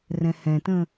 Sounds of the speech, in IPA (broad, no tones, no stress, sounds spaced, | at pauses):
r ɛ̃ h ɛ̃ t ə̃